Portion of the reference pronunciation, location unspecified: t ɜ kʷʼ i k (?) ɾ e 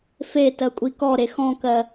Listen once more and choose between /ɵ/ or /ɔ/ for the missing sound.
ɔ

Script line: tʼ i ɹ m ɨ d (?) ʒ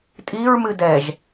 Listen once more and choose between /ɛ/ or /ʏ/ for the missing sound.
ɛ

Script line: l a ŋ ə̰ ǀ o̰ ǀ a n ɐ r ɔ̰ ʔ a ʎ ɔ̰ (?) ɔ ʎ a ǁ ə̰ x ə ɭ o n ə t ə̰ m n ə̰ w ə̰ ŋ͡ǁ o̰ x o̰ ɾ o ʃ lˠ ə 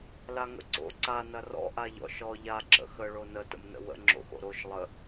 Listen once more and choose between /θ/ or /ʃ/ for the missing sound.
ʃ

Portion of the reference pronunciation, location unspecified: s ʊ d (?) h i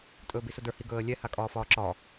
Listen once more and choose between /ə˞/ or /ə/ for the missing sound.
ə˞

